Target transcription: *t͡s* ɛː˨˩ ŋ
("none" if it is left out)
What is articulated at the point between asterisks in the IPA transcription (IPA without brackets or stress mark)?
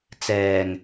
t͡s